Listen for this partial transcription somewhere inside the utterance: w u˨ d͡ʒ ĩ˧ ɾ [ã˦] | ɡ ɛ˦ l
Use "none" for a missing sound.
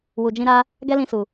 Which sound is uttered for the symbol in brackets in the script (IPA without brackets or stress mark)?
a˦